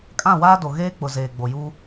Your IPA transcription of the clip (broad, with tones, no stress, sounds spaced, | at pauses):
kʼ ã˦˨ w aː˦ d o˨ ɣ eː˦ k͡p ʊ˨ z eː˨ ɡ͡b o˨ j uː˦